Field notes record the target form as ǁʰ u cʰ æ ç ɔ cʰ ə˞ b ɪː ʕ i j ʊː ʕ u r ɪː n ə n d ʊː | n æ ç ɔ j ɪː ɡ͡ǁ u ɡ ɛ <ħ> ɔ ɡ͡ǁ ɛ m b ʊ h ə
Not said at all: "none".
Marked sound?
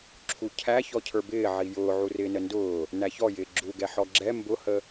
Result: ħ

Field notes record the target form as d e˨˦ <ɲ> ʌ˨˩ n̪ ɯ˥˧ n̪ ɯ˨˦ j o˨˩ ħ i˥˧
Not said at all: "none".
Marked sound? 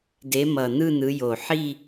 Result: m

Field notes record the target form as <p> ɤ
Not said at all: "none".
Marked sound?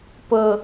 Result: p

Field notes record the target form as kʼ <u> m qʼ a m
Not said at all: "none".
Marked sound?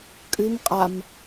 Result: ʉ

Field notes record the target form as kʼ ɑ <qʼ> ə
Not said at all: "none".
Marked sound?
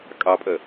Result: pʼ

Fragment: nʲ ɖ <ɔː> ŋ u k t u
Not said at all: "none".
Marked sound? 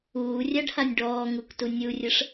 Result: ɔː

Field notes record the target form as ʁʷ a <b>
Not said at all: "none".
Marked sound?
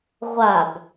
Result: b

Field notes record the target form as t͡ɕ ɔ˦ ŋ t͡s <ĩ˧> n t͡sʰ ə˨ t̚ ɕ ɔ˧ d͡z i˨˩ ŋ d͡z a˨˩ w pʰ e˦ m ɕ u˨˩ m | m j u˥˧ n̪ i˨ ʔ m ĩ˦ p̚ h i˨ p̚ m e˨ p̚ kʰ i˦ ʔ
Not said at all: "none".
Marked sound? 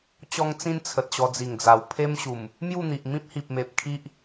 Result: ĩ˦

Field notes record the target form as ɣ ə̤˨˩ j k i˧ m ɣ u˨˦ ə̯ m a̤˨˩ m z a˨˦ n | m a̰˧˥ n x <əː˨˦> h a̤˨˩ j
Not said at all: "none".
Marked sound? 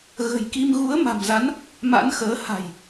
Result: əː˨˦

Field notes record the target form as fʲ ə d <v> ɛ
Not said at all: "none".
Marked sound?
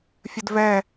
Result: v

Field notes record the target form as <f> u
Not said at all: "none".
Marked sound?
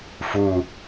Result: f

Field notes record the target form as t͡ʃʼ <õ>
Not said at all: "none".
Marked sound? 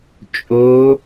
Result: o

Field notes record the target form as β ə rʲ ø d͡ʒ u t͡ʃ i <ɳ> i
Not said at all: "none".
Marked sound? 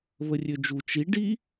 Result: ɖ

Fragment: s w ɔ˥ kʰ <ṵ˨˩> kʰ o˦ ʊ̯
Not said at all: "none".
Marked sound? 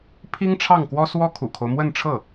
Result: ṵ˨˩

